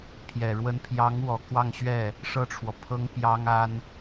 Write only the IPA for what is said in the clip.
pʰ j ɛ˨˩ ɻ w ə˧˥ n pʰ j ɑ˧˥ ŋ w ɔ˨˩ k w ɑ˥˧ ŋ ɕ ɥ ɛ˥˩ | ʂ ɤ˥˩ ʈ͡ʂʰ w ɔ˩ pʰ ɤ˥ ŋ p j ɑ˥ ŋ a˥ n

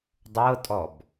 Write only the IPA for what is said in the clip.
dˤ ɤ tʼ ɔ b

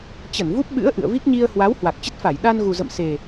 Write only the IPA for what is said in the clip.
t͡ɕ ə˧˩ n v u˦˥ p̚ ɓ ɨ̰˧˥ ə̯ ʔ ɨ̰˧˨ ə̯ v i˦˥ k̚ ɲ i˧ ə̯ h w a˨˦ w h w a˨˩ k̚ t͡ɕ ə˦˥ t̚ f a˧˩ j ɗ a˧ n ɣ u˨˩ z ə̰˧˨ m s e˨˩

